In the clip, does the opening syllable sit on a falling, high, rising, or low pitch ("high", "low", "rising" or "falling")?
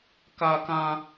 high